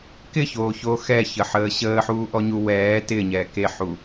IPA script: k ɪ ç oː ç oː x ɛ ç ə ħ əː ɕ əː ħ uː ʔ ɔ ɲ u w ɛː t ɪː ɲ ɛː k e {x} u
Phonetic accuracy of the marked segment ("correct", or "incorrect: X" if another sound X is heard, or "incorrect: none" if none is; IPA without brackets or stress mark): incorrect: ħ